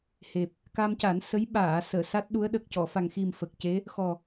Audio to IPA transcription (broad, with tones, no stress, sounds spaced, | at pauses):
h e˨˩ p̚ | k a˧ m c a˨˩˦ n s ə˧˥ j ɓ aː˨˩˨ s əː˨˩˨ s a˦˥ t̚ ɗ u˧˥ ə̯ ɗ ə˨˩ k̚ c ɔ˨˩˨ f a˨˩ ŋ x i˨˩ m f ə˨˩ k̚ c e˧˥ | x ɔ˨˩